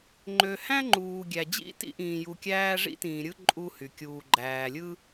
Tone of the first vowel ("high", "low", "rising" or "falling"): low